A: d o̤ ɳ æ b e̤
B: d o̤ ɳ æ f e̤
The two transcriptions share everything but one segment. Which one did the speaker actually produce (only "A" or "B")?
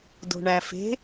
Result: B